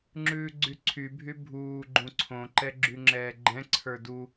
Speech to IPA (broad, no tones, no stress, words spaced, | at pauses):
ŋ͡ǁʉːɡ͡ǀyǀʰybʱy bʱuː ɡ͡ǃũǀʰõǃɛ ɡ͡ǁyŋ͡ǁɛːɡ͡ǃɛ̃ǀʰə˞ du